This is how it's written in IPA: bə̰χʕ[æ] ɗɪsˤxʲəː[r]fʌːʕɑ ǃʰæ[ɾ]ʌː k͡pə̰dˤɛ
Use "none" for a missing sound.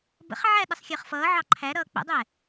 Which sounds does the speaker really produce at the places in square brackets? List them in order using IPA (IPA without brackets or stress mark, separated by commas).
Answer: æ, χ, ɾ